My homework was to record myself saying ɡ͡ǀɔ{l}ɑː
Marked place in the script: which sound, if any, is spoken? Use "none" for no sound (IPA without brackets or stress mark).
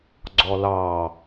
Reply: l